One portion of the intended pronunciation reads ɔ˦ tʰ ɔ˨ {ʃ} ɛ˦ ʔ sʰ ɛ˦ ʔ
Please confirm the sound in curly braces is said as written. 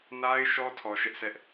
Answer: yes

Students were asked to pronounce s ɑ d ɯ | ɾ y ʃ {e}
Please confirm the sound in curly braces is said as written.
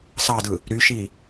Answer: no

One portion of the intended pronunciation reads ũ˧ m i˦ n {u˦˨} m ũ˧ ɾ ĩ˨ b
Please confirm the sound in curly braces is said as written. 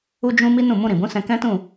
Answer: no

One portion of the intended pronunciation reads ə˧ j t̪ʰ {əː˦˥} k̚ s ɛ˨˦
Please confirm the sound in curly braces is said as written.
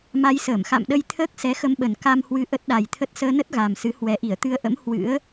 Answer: yes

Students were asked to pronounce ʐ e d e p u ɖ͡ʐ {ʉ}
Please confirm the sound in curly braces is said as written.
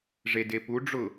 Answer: no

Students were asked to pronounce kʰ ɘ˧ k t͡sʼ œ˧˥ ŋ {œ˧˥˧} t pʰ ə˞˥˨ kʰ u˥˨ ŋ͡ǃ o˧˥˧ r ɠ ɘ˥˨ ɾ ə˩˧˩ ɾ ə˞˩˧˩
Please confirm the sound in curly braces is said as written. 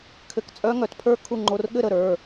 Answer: no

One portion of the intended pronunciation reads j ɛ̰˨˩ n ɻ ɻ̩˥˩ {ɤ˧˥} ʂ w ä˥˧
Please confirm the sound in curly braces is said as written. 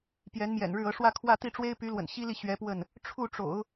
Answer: yes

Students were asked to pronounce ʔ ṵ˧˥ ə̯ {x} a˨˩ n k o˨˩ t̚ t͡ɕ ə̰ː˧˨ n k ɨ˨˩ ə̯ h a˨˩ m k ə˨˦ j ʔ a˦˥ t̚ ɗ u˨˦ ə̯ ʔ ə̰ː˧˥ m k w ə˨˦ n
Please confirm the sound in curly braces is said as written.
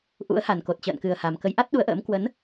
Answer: no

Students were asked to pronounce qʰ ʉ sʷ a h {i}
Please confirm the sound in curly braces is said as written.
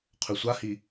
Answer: yes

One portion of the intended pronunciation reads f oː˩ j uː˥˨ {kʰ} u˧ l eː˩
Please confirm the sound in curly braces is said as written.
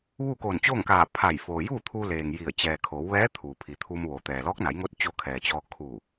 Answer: no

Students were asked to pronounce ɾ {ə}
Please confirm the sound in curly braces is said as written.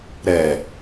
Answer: no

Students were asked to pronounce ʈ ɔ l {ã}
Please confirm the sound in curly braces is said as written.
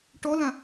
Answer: yes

